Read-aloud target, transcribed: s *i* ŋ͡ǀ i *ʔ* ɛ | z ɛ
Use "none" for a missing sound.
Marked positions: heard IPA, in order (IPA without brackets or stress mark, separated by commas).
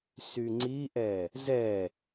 y, ʔ